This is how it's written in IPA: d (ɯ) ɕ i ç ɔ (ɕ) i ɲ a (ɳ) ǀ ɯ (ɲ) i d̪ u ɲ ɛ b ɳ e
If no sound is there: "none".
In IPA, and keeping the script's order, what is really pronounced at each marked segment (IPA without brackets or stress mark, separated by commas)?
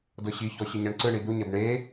ɤ, ɕ, ɳ, ɳ